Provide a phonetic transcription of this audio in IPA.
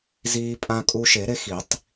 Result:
z iː˧ pʼ ã˧ kʼ u˧ ʃ e˨˩˦ ɾ e˧ x i˨˩˦ tˤ

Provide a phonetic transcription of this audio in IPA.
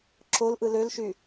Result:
ǁ o l ʔ ɯ l ø l ʃ y

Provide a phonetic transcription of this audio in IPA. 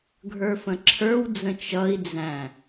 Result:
ɡʱ ə˞ f ə̃ ǁʰ ə˞ w d͡z ə̃ t͡ʃ ʌ i̯ d͡z æ̃

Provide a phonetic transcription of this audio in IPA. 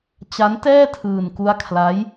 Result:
t͡ɕ a˦˥ n t ɛː˥˩ tʰ ɯː˧ n k u˦˥ a̯ kʰ l a˦˥ j

